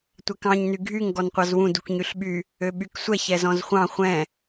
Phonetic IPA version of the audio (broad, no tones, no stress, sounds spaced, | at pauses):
tʷ ɛ k ɑ̃ ɲ n y ɡʱ y ŋ ɡ ɔ n qʷ ɑ z w ũ d u k ɲ y ɬ ɓ y | ø ɓ y k sʷ ɛ ç ɛ z ɔ̃ z χʷ ɑ̃ χʷ ɛ̃